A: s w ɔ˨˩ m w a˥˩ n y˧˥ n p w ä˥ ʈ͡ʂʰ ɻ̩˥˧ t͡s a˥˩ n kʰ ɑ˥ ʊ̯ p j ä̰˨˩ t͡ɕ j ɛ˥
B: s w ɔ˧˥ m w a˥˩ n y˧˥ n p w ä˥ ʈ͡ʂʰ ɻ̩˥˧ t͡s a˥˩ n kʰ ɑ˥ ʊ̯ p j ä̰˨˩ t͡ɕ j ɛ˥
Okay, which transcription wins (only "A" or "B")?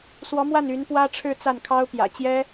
B